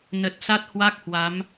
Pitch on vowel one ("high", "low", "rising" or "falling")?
low